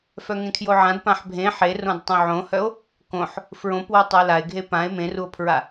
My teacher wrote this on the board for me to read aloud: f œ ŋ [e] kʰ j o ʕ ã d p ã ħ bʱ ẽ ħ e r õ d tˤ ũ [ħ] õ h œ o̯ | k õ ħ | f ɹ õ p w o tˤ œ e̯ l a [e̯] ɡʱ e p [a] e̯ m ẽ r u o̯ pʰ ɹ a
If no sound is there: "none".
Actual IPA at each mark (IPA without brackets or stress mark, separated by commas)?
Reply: ẽ, ʕ, e̯, ã